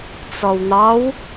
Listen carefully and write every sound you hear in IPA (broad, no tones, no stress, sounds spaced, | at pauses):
t͡s ɔ w n̪ ɑ w